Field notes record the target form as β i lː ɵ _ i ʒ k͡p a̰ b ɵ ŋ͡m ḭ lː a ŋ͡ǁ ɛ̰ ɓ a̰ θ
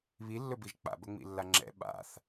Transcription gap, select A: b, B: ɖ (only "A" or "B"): A